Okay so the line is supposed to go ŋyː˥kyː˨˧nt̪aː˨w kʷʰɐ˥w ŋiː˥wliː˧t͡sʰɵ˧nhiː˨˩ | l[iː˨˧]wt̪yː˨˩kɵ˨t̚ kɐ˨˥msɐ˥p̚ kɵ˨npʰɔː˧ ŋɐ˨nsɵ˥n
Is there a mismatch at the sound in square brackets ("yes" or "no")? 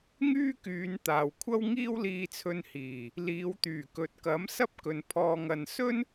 no